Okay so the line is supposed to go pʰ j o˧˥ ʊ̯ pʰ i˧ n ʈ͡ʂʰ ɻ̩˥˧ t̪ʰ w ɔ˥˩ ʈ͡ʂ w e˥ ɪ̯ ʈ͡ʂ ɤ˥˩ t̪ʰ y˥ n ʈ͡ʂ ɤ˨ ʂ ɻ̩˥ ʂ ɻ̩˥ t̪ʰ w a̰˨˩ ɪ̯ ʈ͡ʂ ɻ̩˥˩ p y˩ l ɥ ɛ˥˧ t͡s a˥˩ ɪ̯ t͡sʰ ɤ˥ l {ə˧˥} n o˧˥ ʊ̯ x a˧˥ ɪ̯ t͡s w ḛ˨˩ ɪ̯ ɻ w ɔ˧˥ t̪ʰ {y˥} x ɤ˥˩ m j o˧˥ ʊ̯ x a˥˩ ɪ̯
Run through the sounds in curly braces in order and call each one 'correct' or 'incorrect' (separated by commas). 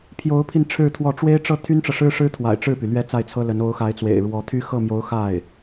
correct, correct